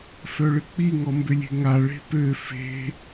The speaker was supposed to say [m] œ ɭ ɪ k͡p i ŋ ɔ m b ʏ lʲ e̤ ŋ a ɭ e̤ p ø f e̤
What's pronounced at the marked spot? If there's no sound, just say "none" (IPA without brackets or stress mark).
f